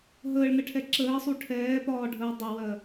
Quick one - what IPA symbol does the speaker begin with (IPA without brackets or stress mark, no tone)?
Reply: ɦ